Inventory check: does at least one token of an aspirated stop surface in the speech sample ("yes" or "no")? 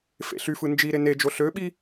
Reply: no